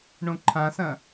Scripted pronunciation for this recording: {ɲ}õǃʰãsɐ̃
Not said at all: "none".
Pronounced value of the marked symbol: ɳ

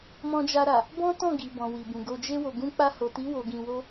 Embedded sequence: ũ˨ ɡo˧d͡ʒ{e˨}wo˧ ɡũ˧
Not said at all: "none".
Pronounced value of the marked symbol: e˦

